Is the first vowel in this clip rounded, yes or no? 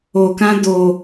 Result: yes